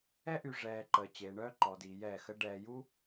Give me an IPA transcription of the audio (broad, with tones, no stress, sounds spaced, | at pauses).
ɛ˦ ʔ y˨ ʐ ɛː˨ ǃ əː˨ t͡ɕ eː˨ ɳ œː˦ ǃ ɔ˨ d iː˨ j ɛː˦˨ x ə˦ ɖ ɛː˨ j u˦